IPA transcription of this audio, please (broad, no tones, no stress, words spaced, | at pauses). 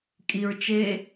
kʼiɹ t͡ʃe